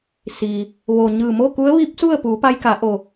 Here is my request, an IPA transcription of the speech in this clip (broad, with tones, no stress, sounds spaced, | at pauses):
s iː˩ | ʋ o˩ ɲ ɯː˧˩ m oː˥˨ k u˧˥ ə̯ ʋ iː˧˥ p̚ s u˥˨ ə̯ p uː˩˧ p a˧ j k a˩˧ ʔ o˩